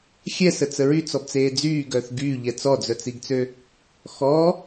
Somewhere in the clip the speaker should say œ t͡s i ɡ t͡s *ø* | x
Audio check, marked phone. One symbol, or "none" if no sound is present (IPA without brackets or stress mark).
ø